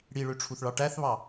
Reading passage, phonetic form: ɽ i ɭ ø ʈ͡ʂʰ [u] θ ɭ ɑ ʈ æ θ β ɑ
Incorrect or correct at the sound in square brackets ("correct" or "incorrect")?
correct